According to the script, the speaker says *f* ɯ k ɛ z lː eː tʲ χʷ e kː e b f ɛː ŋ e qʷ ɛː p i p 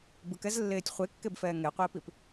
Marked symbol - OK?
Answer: no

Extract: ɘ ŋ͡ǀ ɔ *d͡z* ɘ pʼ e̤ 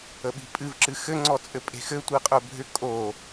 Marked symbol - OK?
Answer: no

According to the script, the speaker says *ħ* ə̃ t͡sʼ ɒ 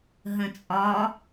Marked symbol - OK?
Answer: no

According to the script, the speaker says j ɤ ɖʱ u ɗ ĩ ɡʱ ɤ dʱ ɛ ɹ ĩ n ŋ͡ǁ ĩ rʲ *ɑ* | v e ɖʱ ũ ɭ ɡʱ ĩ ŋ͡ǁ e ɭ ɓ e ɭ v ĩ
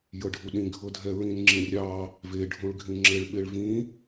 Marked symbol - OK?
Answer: yes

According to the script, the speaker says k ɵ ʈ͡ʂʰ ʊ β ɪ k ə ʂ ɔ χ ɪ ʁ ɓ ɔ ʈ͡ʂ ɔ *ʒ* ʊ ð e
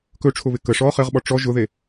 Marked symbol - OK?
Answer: yes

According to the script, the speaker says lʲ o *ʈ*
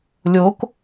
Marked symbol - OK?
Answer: no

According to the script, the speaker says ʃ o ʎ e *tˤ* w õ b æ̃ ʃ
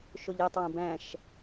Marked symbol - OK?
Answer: yes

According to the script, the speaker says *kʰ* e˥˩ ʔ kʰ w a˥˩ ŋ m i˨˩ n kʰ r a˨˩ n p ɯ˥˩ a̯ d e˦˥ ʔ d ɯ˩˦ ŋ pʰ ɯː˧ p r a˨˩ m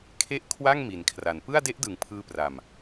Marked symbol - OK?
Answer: yes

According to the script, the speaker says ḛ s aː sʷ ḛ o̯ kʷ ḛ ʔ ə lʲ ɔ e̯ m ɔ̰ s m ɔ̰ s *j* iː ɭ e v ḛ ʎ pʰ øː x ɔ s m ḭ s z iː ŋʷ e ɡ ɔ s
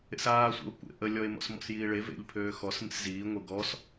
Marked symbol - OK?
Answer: yes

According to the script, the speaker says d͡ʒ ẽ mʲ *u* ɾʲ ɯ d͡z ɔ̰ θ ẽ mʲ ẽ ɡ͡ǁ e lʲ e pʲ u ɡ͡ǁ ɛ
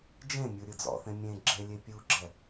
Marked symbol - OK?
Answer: yes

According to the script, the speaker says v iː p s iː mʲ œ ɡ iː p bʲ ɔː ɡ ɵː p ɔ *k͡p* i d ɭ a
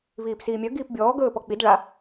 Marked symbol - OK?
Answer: yes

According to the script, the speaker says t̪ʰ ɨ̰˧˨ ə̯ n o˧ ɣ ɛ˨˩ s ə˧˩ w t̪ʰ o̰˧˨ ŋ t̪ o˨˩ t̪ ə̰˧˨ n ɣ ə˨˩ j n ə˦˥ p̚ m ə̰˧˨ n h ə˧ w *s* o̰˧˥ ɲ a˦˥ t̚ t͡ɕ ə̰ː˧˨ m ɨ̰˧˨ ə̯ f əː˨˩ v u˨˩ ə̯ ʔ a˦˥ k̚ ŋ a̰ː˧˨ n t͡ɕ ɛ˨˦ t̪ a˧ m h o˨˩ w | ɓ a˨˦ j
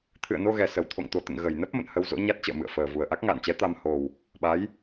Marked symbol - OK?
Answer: no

